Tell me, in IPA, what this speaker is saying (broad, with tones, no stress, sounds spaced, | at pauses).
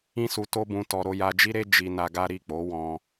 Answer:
ĩ˦ s u˧ t o˦ b ũ˧ t ɔ˧ ɾ o˧ j a˧ d͡ʒ i˦ ɾ e˦ d͡ʒ i˧ n a˧ ɡ a˦ ɾ i˦˨ k͡p o˨˦ w ɔ̃˧